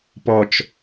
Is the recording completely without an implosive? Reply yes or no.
yes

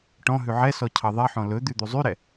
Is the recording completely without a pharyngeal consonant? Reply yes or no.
no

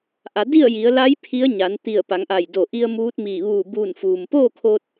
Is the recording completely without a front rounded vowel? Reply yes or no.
yes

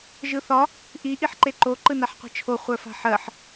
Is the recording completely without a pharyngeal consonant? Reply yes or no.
no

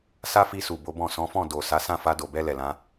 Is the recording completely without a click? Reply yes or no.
yes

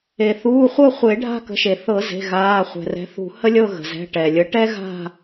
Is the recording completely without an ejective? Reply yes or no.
yes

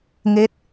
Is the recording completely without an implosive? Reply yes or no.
yes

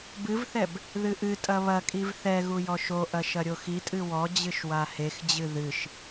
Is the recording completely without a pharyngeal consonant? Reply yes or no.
yes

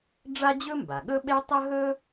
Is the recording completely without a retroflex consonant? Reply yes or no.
no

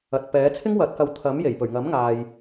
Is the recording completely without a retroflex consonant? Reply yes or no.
yes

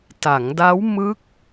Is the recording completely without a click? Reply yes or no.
yes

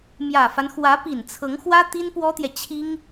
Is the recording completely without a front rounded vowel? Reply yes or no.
yes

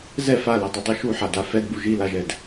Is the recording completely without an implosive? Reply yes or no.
yes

